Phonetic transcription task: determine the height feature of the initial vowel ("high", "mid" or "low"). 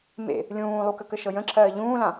mid